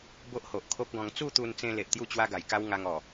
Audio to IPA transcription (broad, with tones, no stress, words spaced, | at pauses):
bo˦ʔho˨ʔkʰo˦p̚ɡɔ̃˧ŋ t͡su˥˧t̪u˧nt͡sẽ˧ le˨ʔt̪ju˥˧ t͡ɕwa˦ɡa˨˩jka˦w ŋa˧ŋɔ˨˩